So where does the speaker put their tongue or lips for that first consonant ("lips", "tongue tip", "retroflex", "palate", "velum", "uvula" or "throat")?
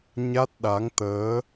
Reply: palate